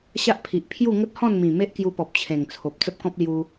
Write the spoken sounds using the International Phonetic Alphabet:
ɕ a˦ ʔ pʰ i˨ ʔ pʰ j u˥˧ ŋ ə˦ t̚ h ɔ̃˥˧ n m ĩ˨˩ m e˦ ʔ k j u˧ p ɔ˨ p̚ t͡ɕʰ ẽ˨˩ ŋ t͡sʰ o˨ p̚ t͡s ə˦ p̚ k ɔ̃˦ p̚ l j u˧

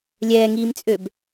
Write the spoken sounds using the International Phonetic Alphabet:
lʲ ɛː ŋ iː m t͡sʼ ø b

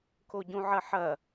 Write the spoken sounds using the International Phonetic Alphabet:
k o ɟ ũ ʕ ɐ ħ ɐ

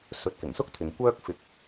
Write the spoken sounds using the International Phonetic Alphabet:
s ɵ˨˥ t̚ k ɪ˨˩ ŋ s ʊ˥ k̚ t̪ʰ ɪ˨ ŋ kʷ œː˥ k̚ f ɪ˧ k̚

